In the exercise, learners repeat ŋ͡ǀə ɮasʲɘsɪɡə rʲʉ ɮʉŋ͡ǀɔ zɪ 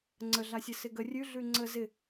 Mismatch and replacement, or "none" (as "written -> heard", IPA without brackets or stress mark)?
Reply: ɔ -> ə